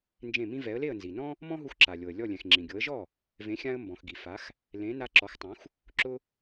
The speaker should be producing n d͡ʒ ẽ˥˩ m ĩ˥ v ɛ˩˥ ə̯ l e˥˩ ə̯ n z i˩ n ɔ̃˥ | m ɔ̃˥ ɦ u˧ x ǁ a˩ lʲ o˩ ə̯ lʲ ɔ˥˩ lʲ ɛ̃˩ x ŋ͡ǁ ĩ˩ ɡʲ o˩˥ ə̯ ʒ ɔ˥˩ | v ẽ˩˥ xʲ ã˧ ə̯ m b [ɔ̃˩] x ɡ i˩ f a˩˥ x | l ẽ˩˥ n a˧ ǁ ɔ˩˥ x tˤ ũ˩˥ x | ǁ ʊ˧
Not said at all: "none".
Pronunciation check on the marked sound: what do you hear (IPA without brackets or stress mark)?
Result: ɔ̃˩